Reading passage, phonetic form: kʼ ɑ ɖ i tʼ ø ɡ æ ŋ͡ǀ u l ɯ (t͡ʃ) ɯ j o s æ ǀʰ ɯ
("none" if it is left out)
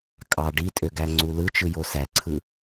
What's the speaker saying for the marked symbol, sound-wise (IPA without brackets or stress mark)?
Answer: t͡ʃ